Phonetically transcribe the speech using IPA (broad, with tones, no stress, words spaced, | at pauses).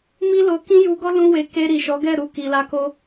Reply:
mi˦lo˧ kĩ˦ju˧ɡɔ˦ lũ˦we˧ ke˧ɾi˨ ʃɔ˨˦ɡɛ˦˨ɾu˧ ki˨la˧ko˧